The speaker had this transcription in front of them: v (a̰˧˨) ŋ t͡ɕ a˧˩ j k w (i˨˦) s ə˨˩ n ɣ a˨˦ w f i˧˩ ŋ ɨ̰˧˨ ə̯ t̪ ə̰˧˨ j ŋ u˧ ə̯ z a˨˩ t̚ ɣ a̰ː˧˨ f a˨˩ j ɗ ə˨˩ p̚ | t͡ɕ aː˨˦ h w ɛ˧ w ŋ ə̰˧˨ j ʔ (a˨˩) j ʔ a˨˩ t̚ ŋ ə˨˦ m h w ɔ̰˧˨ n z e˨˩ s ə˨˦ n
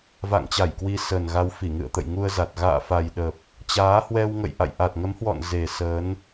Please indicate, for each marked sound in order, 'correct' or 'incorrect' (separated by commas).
correct, correct, incorrect